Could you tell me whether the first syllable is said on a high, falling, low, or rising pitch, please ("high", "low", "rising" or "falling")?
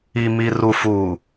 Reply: low